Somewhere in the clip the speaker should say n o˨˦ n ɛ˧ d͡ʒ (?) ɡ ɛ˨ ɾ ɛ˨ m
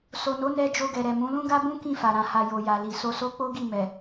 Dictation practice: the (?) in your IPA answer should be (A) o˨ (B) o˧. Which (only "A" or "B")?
B